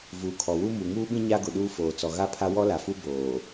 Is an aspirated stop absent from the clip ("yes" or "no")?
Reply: no